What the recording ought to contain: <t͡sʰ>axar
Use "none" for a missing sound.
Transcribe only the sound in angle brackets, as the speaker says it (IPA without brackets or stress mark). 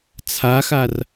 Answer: t͡sʰ